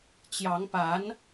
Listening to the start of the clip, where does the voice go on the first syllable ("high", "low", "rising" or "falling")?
rising